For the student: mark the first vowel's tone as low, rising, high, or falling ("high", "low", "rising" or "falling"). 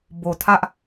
low